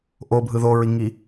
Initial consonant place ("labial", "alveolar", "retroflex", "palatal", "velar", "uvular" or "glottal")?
glottal